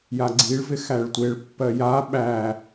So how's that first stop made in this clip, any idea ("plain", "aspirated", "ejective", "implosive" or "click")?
click